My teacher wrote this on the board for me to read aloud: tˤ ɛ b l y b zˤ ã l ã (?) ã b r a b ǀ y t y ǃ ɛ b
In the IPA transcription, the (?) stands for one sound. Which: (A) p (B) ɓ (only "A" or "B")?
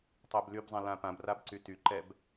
A